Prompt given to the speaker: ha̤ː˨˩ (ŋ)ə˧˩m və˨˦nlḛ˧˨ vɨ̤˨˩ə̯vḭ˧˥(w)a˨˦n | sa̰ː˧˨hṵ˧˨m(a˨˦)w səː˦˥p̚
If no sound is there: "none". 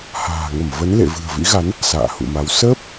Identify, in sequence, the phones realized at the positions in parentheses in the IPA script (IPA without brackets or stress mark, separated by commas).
ŋ, ɣ, a˨˦